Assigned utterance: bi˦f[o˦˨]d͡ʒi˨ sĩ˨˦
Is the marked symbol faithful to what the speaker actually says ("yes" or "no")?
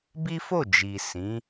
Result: yes